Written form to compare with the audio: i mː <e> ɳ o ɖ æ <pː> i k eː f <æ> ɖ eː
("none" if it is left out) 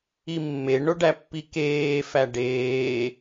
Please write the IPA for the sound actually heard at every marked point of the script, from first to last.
e, pː, æ

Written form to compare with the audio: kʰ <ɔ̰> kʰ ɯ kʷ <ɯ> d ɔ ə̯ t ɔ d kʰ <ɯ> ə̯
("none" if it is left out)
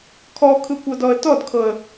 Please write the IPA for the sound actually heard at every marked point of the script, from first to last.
ɔ, ɤ, ɤ

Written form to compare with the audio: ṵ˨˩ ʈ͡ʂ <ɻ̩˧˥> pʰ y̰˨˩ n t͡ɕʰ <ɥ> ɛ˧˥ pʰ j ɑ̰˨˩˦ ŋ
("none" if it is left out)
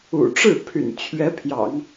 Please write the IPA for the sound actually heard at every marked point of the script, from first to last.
ɻ̩˥˩, ɥ

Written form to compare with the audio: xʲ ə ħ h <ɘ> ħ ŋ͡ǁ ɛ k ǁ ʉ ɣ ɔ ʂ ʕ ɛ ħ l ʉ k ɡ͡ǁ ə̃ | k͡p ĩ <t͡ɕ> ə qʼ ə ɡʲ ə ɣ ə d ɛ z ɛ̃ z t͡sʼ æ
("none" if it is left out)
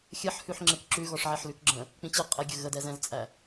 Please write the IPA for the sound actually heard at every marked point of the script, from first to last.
ʉ, t͡ɕ

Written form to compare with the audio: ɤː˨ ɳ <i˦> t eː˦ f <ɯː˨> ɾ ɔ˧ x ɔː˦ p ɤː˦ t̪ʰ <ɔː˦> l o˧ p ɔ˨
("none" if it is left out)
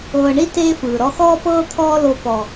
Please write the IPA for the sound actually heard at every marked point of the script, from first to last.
i˦, ɯː˨, ɔː˦

